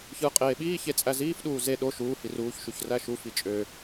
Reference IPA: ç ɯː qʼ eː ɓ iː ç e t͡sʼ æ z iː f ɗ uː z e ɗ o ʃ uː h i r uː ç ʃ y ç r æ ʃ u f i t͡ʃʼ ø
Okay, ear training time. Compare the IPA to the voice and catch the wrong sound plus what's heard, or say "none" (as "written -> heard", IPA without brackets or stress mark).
none